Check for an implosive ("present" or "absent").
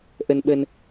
present